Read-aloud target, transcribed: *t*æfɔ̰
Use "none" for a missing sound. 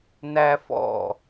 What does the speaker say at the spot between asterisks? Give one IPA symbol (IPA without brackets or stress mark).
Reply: n